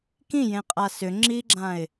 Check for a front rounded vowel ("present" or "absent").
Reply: present